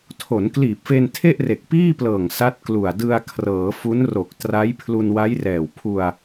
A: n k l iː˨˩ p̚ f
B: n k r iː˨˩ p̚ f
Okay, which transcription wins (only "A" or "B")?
A